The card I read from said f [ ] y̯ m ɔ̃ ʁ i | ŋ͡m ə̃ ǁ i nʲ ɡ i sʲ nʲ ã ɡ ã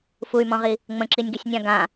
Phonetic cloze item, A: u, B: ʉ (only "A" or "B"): A